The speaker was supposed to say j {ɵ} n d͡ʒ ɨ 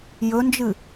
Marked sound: correct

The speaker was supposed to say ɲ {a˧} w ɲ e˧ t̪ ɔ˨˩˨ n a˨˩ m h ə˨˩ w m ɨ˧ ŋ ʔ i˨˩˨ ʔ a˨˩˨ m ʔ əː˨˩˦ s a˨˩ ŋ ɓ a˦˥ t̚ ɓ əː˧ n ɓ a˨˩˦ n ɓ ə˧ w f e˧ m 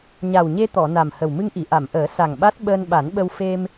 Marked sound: incorrect: a˨˩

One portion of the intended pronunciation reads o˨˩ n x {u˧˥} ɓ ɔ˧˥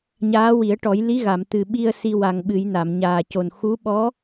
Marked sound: correct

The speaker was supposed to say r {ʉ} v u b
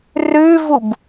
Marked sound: correct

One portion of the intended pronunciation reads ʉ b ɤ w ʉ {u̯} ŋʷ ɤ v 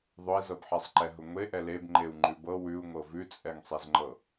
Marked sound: correct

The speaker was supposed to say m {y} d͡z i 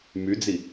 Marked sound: correct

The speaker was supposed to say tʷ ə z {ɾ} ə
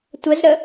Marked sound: correct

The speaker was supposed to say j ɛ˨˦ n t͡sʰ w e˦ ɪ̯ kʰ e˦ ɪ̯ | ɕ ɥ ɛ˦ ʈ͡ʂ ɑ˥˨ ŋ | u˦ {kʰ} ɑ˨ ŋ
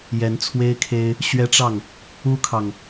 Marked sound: correct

